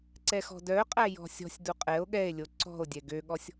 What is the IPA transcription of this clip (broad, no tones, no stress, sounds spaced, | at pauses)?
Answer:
ǀ ɛ x ɔ̤ d œ qʼ æ j ɔ̤ sʲ ɔ̤ sʲ d u qʼ ɛ o̯ ɠ ɛ e̯ lʲ o ǀ ɔ̤ o̯ dʲ ɛ ɡ ø ɠ ɔ sʲ